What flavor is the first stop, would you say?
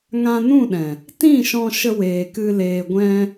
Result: implosive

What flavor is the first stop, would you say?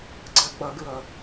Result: click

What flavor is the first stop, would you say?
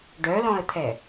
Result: plain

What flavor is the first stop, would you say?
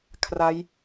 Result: aspirated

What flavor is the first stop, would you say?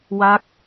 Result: plain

